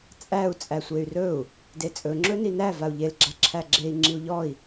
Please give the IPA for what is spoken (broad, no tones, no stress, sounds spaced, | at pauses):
t͡sʼ æ u̯ t͡sʼ æ sʷ e y̯ r ɵ u̯ | d e t͡sʼ ɵ ŋ͡ǁ ɵ n i n æ v a u̯ ʎ e l ɡ͡ǁ a ǁʰ æ ɡ͡ǁ e i̯ ŋ͡ǁ i u̯ ʎ ɔ i̯